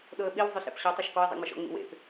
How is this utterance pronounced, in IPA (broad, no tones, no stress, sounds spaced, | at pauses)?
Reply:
ɗ ɤ ə̯ ɓ i w zˤ ʉ ɬ ḛ p ɕ ɔ tˤ ɛ ʃ k ɔ ɪ̯ zˤ ḭ ŋ͡m ɤ ʃ ɔ̰ ŋ͡m ḭ w ḛ p